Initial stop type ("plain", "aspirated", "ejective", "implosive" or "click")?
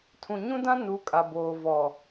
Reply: aspirated